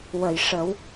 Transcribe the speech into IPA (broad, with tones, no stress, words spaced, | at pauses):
wə˨˩˨jʂə˨˩˦w